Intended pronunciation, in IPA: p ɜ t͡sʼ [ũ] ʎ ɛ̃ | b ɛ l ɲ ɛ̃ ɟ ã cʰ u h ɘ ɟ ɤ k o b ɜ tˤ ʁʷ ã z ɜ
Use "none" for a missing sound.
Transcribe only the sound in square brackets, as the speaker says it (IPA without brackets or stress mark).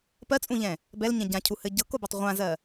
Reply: ũ